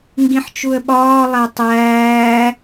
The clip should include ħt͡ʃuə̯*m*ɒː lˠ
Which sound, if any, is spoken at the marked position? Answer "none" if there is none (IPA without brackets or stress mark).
ɓ